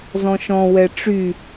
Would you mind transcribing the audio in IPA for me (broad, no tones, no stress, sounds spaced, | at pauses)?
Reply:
z ɔ̃ ʃ ɔ̃ w ɛ ʈ͡ʂ y